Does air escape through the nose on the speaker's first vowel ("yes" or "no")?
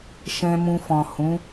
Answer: yes